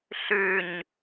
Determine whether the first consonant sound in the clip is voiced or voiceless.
voiceless